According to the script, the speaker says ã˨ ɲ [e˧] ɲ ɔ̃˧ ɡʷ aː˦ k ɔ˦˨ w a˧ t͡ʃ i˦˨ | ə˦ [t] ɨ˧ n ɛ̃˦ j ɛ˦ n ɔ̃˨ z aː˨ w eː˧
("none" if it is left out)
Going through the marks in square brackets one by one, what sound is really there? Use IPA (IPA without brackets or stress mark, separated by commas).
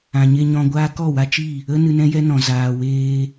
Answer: e˧, n